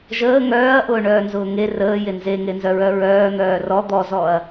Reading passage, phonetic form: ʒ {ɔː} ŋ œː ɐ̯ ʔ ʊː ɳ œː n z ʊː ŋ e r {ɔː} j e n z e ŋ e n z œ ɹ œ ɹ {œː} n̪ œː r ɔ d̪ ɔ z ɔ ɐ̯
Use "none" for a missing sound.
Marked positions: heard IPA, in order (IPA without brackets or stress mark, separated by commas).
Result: əː, əː, œː